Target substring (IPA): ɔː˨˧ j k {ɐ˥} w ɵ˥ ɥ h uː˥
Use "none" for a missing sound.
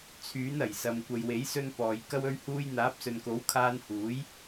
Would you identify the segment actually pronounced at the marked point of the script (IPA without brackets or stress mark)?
ɐ˥